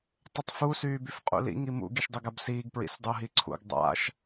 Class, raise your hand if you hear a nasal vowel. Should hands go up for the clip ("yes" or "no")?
no